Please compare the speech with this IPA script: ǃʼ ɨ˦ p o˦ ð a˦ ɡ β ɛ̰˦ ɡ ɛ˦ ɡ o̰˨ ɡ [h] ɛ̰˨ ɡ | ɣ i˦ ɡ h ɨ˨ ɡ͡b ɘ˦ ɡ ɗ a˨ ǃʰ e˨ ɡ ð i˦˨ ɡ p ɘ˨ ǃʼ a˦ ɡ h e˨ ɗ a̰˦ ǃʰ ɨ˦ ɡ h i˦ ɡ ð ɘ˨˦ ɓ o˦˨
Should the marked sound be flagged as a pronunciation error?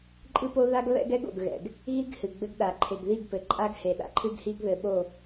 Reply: yes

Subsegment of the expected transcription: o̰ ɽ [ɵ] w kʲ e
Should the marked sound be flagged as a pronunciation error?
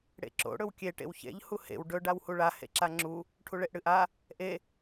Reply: no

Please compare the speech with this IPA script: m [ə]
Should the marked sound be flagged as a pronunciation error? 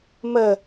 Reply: no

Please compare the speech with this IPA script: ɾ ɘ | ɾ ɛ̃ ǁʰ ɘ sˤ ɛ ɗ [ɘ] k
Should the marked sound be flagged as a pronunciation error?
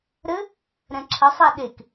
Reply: yes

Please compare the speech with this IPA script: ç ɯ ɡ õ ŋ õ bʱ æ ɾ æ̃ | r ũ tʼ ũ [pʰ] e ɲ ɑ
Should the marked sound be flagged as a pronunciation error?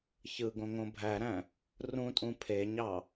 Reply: no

